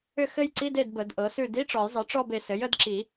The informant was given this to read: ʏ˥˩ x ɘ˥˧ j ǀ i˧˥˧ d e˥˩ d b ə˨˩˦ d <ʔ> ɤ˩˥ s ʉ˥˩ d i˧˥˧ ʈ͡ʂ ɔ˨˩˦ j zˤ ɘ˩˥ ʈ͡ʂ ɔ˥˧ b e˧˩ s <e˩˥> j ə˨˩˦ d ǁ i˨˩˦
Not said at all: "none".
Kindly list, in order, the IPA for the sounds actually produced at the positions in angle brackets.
ʔ, ɘ˩˥

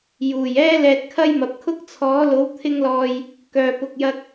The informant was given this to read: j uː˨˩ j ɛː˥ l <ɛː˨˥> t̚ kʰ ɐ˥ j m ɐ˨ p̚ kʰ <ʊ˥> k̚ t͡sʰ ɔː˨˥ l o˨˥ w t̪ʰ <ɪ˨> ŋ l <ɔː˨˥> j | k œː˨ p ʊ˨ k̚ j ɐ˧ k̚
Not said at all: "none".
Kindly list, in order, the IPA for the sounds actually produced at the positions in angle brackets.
ɛː˧, ʊ˥, ɪ˧, ɔː˨

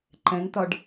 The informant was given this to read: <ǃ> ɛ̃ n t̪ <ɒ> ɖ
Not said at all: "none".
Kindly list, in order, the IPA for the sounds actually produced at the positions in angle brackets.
ǃ, ɒ

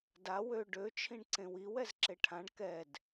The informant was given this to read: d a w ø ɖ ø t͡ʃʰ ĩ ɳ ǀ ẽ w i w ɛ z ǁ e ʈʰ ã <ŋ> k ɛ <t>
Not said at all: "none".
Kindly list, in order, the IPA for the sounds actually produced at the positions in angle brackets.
ɳ, d

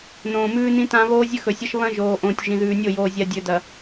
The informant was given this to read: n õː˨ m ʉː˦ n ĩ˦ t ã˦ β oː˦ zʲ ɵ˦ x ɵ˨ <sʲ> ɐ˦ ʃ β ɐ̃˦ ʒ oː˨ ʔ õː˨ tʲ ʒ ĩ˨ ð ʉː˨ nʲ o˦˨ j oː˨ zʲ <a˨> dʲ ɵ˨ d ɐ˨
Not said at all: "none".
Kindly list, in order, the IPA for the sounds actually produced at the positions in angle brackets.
sʲ, a˨

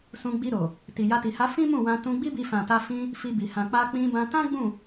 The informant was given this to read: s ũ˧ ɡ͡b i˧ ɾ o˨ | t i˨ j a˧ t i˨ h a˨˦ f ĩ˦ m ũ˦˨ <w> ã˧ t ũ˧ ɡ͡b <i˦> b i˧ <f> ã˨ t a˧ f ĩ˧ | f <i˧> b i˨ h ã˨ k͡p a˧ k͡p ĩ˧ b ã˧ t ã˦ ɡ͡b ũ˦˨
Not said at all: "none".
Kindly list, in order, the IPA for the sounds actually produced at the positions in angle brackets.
w, i˦, f, i˧

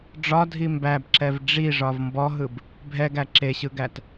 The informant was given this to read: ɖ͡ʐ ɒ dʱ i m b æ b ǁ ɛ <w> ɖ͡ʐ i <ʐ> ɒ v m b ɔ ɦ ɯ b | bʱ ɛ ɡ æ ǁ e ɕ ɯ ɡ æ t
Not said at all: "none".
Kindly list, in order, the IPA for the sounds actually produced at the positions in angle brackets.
v, ʐ

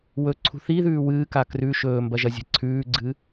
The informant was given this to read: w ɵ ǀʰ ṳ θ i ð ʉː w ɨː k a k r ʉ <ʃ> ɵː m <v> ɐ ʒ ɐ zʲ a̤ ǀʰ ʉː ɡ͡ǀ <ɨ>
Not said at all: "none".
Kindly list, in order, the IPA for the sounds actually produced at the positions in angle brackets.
ʃ, b, ɨ

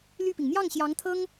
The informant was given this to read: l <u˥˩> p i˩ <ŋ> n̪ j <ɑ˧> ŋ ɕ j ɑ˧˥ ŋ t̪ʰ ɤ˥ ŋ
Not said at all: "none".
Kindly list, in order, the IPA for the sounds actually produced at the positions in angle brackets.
y˥˩, ŋ, ɑ˥˩

